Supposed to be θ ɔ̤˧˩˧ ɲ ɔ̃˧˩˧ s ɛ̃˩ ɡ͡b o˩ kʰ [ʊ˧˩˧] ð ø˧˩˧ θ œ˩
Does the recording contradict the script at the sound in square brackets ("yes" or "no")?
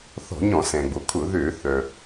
no